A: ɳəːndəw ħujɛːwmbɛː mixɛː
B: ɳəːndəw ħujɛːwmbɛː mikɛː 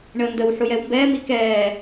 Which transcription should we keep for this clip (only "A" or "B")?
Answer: B